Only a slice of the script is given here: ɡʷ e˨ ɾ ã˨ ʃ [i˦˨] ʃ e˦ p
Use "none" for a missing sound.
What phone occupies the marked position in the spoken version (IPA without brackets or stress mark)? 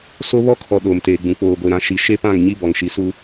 i˨